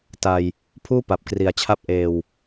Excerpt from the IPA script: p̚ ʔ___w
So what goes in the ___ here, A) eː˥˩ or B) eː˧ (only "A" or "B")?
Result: B